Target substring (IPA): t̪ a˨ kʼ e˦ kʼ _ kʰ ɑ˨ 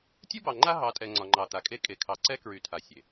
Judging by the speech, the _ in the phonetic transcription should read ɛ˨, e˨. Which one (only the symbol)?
e˨